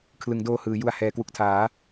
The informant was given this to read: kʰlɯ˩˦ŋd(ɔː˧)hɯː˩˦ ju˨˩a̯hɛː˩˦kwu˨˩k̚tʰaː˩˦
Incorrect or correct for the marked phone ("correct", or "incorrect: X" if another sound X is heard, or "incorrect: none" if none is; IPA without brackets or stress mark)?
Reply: incorrect: oː˧